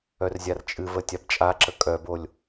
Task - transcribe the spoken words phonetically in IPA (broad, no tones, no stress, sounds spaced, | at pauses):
œ r zʲ a r t͡ʃʼ ɨ v ə tʲ a b t͡ʃʼ a ǁ ə kʼ œ b o lʲ